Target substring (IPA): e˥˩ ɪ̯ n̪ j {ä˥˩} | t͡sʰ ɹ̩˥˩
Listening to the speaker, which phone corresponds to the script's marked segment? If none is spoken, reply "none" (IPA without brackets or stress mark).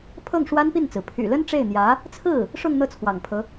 ä˧˥